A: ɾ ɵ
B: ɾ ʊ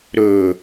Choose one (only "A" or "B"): A